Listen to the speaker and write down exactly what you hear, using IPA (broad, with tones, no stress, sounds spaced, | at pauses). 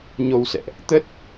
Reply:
ɲ o˧ w s ɛ̰˧˨ ʔ | t̪ ə˦˥ t̚